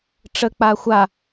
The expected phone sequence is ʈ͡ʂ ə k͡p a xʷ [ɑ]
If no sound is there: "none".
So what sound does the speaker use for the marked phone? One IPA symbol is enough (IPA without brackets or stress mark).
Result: a